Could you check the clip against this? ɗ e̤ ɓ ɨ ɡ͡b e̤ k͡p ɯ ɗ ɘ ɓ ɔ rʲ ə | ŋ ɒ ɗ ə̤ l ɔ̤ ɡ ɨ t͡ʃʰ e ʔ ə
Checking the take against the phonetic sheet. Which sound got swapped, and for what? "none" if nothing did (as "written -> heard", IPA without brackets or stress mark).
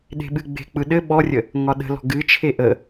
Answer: none